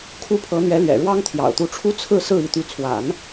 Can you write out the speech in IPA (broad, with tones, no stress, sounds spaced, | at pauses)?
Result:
kʰ u˥˩ pʰ ɤ˧˥ n̪ ɥ ɛ˧˥ l ɥ ɛ̰˨˩ ɻ w ɑ˥ ŋ t̪ʰ j ɑ̰˨˩ ʊ̯ t̪ u˧˥ ʈ͡ʂʰ u˥ t͡sʰ ɹ̩˥˧ s ɹ̩˥˩ i˧˥ t̪ y˧˥ t͡sʰ w a̰˨˩˦ n